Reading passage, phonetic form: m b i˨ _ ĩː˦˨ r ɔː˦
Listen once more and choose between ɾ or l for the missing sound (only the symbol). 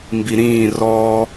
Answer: ɾ